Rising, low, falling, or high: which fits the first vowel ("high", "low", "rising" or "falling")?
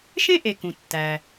high